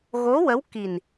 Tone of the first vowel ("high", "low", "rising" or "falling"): rising